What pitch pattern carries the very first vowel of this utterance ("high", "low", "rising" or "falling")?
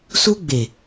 high